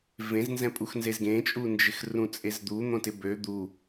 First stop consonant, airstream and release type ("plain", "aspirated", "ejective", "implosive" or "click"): ejective